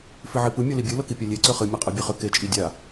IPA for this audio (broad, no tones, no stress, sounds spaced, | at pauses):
f i ʕ i p ɯ mʲ ɤ l i bʲ ɨ l ɤ k i pʲ a lʲ e ǀ ʏ χ ɨ mʲ ɤ qʼ ɤ bʲ e χ ʏ k e t͡ʃʼ i dʲ a